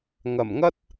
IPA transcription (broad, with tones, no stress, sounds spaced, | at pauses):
ŋ ɐ˨˩ m ŋ ɐ˥ t̚